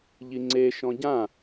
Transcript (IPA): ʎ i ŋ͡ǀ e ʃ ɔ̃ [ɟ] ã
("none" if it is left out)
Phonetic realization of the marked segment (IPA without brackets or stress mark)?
ɟ